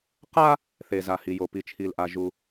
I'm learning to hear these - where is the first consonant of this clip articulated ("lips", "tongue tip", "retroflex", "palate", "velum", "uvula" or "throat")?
uvula